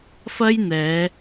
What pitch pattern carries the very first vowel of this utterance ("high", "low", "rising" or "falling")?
high